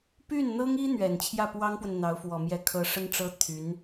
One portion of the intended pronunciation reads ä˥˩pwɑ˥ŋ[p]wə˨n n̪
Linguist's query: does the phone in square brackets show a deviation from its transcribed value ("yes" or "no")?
no